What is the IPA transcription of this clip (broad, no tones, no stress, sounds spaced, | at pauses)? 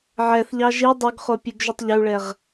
ʕ ɛ θ ʎ ɑ ʒ i dˤ ɵ ɡ χ o pʲ ʉ ɡ ʒ ʉ tˤ ʎ ɵ u̯ ɭ ɛ ʁ